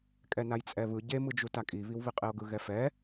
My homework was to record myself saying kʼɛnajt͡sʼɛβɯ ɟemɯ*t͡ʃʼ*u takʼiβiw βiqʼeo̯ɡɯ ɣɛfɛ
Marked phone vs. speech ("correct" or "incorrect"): incorrect